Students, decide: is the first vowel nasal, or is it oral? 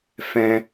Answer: nasal